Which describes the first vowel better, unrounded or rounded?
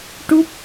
rounded